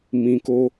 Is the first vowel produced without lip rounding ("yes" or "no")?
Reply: yes